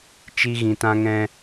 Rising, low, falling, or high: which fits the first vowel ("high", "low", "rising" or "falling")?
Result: high